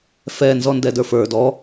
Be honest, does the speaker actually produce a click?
no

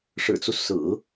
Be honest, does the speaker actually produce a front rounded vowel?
no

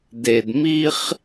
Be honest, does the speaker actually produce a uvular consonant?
yes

